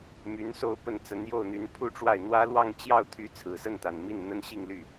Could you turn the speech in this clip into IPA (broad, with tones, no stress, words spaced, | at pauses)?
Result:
my˧˥n so˥˧ʊ̯pə˥˩nt͡sə˧˥n jo˥˩ʊ̯n̪y˧˥npʰu˥˧ʈ͡ʂwa˥˩ɪ̯ n̪wä˥lwɑ˥˧ŋ t͡ɕjɑ˥˩ʊ̯t̪ʰy˧˥ t͡sʰɹ̩˨˩sə˥˩nt̪a˨˩n mi˥˩n n̪ə˥nɕi˥˧ŋly˥˩